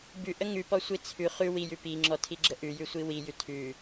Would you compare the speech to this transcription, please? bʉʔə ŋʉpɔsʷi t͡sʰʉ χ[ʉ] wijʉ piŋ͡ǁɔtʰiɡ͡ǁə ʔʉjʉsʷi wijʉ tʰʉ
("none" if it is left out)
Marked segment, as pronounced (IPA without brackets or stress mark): ʉ